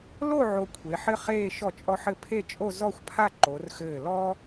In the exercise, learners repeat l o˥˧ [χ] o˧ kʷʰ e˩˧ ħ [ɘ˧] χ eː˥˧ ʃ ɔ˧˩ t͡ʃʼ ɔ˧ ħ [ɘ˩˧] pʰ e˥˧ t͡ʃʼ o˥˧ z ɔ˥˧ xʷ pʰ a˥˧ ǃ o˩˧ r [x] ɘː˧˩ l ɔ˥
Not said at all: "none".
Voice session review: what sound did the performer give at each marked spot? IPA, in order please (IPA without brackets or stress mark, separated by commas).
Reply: ʕ, ɘ˥, ɘ˧˩, x